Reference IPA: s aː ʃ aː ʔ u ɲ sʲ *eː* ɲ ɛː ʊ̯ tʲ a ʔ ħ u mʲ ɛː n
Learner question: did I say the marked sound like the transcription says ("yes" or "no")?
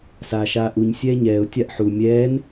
no